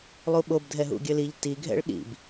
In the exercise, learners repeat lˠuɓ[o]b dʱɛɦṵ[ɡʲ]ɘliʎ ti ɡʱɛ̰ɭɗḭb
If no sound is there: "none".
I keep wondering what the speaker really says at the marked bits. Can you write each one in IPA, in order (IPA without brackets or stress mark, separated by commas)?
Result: o, ɡʲ